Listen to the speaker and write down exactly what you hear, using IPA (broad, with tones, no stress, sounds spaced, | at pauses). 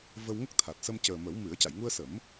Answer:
v ə˧ w ŋ ə˦˥ k̚ t̪ʰ a˨˩ t̚ s ə˧ m c əː˨˩ m ə˨˩˦ w m ɨ˨˩˦ ə̯ c a˨˩˨ j ŋ u˧ ə̯ s ə˨˩˦ m